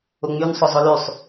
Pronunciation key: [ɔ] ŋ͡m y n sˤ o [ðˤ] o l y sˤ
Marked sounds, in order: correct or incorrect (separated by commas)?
incorrect, incorrect